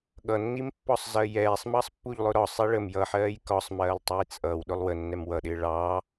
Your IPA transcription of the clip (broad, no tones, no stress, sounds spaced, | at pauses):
ɠ ʌ nː i m pː ɒ sˤ z ɜ j ɛː sˤ m ɑ sˤ pː u ʎ lˠ ʊ ɾ ɒ sˤ i ɭ ə m j ʌ ħ ɜː j k ɒ sˤ m ɜː lˠ tˤ ɛ j t͡sʼ ʌ w ɗ ʊ lˠ w ə nː ɛ m w ʌ ɗ ɪː ɭ ɑ